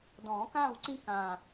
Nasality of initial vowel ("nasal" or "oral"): nasal